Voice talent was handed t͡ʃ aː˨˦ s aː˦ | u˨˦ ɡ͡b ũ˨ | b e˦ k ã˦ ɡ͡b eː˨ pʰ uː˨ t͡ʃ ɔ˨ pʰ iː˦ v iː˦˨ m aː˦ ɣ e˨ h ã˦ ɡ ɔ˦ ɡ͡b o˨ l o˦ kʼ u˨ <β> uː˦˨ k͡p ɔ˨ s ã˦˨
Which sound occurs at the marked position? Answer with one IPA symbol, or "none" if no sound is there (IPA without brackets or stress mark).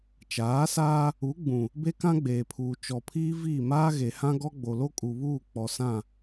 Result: β